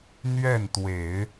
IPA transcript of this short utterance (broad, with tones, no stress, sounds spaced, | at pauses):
n̪ ɥ ɛ˥˩ n t̪ w e˨˩˦ ɪ̯